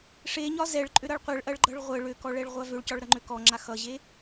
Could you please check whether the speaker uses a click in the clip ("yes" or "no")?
yes